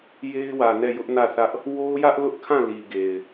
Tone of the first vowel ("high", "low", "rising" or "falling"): high